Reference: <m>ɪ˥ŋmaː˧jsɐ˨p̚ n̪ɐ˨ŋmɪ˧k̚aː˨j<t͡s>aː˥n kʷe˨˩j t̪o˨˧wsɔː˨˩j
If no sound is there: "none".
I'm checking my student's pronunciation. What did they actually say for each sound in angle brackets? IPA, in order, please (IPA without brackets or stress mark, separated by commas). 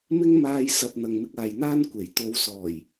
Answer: m, n̪